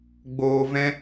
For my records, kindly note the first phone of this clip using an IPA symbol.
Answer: ɡ͡b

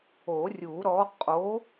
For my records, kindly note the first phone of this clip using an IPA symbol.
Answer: o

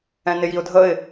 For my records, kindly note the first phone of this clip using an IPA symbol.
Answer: ɛ̃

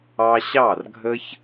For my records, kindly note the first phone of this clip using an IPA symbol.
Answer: ɑ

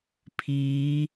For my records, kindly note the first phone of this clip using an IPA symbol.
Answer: pʰ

